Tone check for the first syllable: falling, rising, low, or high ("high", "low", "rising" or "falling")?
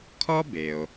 high